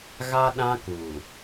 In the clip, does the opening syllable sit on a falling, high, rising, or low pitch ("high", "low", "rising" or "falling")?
high